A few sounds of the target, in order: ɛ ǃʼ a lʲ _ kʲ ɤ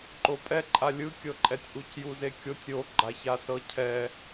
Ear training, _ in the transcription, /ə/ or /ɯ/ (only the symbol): ɯ